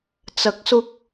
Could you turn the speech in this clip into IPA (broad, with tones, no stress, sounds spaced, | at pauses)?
t͡s ɐ˨˥ k̚ s ʊ˧ k̚